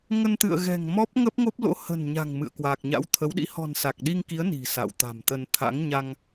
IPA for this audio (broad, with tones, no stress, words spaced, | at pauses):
ŋə˧nt̪ɨ̰˧˨ə̯ɣɛ̤˨˩ŋ mɔ˦˥p̚ŋə˦˥p̚ŋo˦˥p̚ lo̰˧˥hə̤˨˩n ɲa̤˨˩ŋmɨ̰˧˨ə̯ kwaː˨˩k̚ɲa̰˧˥wt̪ʰə˨˦wɗḭ˧˥ hɔ̤˨˩nsa˨˩k̚ɗi˧ŋki˨˦ə̯ ni̤˨˩sa̰˧˨wt̪a̤˨˩mt̪ə˧n t̪ʰa̰˧˥ŋɲa˧ŋ